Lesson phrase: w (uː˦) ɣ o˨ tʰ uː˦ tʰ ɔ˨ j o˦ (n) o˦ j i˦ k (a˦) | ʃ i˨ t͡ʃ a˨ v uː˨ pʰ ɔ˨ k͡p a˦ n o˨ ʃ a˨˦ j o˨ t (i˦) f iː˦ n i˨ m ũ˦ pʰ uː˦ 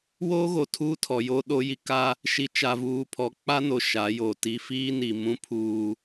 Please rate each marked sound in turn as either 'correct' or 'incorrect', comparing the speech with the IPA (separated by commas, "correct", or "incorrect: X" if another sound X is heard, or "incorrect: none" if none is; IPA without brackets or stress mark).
incorrect: oː˦, incorrect: ɗ, correct, correct